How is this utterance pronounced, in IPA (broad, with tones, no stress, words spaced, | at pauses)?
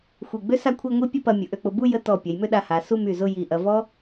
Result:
xʷi˧˩ ɡ͡bø˥ sa˥˧kʷʰi˥˧ ŋʷi˥pʲɐ˥pɐ˧ mʲʊ˩˧ ʔø˧k͡pʊ˧ bu˥˧jə˧ tɔ˧˩pʲɐ˩˧jmʏ˥˧ ɗa˧ha˩˧ su˥˧my˧˩zʊ˥˧ ji˧˩ʔɐ˧ vɔ˥